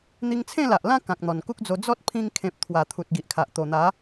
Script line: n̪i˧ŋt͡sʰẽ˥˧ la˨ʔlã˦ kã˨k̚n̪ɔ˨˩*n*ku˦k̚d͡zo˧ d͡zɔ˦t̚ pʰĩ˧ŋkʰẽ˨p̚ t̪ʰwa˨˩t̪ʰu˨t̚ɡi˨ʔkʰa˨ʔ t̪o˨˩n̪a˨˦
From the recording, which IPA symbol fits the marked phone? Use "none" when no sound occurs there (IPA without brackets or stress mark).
n